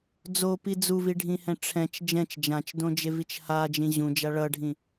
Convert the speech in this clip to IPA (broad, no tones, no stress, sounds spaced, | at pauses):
d͡z o p i d͡z u v i ɖʱ ĩ h ɛ̃ ʈ͡ʂʰ ɛ̃ t͡ʃ d͡ʒ ɛ̃ t͡ʃ d͡ʒ ã t͡ʃ d õ d͡ʒ e v i t͡ʃ h a d͡ʒ ĩ ʑ ũ d͡ʒ a ɭ ʌ ɖʱ ĩ